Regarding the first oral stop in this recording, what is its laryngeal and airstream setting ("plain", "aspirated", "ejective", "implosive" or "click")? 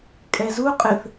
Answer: ejective